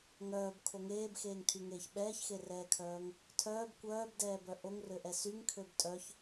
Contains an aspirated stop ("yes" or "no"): yes